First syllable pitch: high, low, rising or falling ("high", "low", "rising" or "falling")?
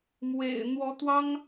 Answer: low